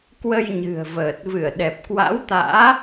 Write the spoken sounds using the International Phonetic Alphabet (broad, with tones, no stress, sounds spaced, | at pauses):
k w ə˧ j ɲ ɨ̤˨˩ ə̯ v əː˨˩ t̚ v ɨ˧˩ ə̯ ɗ ɛ˨˩ p̚ k w a̰˧˥ w t̪ a̰ː˧˥